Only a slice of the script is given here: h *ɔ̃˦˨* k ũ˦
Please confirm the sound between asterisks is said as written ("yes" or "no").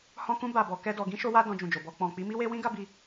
no